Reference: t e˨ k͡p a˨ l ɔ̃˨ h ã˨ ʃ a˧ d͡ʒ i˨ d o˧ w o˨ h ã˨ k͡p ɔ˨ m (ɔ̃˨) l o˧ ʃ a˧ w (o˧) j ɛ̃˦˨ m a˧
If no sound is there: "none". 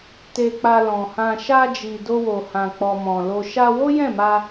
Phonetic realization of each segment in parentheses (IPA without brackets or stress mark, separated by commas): ɔ̃˨, o˦